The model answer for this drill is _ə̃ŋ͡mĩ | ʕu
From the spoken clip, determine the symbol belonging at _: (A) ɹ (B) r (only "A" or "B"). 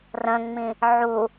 B